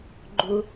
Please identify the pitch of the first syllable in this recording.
high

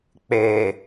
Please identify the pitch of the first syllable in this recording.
low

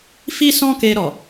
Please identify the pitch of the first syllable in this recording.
high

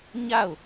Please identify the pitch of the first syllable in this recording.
falling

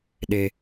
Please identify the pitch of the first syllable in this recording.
low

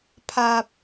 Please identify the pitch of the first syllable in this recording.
low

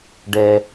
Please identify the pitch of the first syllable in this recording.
high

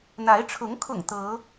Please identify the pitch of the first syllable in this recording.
rising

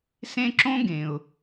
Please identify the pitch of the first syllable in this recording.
high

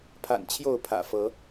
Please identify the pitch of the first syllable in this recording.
low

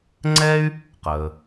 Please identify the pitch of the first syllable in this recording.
high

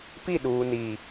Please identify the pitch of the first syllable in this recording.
falling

